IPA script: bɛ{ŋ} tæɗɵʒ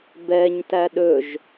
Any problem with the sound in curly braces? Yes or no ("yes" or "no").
yes